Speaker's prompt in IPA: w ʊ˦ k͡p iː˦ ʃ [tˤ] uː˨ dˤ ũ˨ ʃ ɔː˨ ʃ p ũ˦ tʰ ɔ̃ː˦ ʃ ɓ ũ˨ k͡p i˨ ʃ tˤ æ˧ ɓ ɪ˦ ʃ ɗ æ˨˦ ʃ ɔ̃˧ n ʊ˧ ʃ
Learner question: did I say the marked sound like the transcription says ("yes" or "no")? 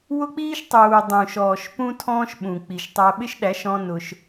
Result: yes